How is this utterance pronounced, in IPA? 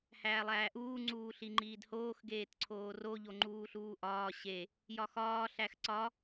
h æː lˠ æː ʔ uː ŋ͡ǀ uː ɬ i ŋ͡ǃ iː d h oː x ɡ eː t ǀʰ oː r o ʎ o ŋ͡ǃ uː ɬ uː ʔ ɒː ɕ e | j ɒ x ɒː ɬ æ x ǀ ɒ

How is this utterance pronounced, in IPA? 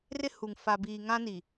r ɪ˦ h u˨ ŋ f a˨ b iː˨ ŋ ã˦ n i˨

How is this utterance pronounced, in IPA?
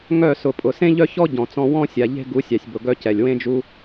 ŋ œ˦˨ s ʊ˨ pʼ ʊ˨ s ẽ˦ ʎ œ˦ ç ɔ˦ ɟ ɔ̃˨ t͡s ɔ̃˧ w ɔ̃˦ sʲ a˨ ʎ e̤˦ ɡ u˨˦ sʲ ɑ˨ sʲ b ʊ˨ ɡ œ˦ c ɛ˨ lʲ w ẽ˦ d͡ʒ u˦

